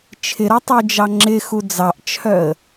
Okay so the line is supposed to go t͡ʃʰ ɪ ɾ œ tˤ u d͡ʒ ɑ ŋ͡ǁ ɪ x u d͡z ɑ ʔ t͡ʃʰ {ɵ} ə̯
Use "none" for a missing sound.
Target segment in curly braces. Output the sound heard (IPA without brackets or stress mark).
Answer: œ